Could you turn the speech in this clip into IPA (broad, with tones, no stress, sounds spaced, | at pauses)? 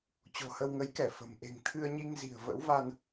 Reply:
t͡ɕ o̤˨˩ h ə˧ w ŋ ə˨˦ j k ɛ˧˩ f ə̤˨˩ m ʔ e̤˨˩ ŋ t̪ʰ ɨ˧ ə̯ ɲ i˧ ŋ z i̤˨˩ ə̯ v ə̰˧˥ w v a˧ n